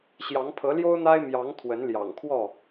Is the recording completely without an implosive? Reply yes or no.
yes